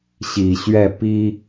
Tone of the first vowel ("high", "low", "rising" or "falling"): low